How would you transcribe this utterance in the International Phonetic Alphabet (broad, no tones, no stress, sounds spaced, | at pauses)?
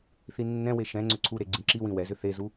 θ i nː ɛ̃ w e ʃ ɛ̃ ŋ͡ǀ ʏ ǀʰ u ɾ e ɡ͡ǀ ĩ ǁ i w ĩ w ɛ z ʏ θ e z u